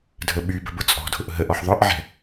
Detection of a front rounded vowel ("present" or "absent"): present